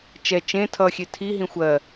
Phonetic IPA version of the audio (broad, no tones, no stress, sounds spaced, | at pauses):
t͡ʃ ɛ t͡ʃ ẽ tʰ ʌ xʲ e tʰ i ɦ ĩ xʷ ɜ